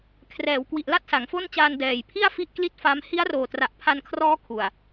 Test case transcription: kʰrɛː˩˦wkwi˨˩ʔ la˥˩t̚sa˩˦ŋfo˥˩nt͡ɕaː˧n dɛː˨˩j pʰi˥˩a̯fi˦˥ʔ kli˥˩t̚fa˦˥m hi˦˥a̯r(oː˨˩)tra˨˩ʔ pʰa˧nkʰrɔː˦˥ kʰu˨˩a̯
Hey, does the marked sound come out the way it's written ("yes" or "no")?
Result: yes